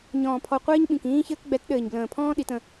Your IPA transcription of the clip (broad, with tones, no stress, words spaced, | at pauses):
ɲɔ̃ː˨pʰɔ˨ qʷɘː˦ɲɓĩ˨kĩː˦çɘː˦k ɡ͡bɛ˨˦tɗɘː˨ɲblə̃ː˨pʰɔ̃ː˦ ɗi˨˦tə̃˦